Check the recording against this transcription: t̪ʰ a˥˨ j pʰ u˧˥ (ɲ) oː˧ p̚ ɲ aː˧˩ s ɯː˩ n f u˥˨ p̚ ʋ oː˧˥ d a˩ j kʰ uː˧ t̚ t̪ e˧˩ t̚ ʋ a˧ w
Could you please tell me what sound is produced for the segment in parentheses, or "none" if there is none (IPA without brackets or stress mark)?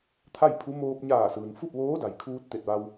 m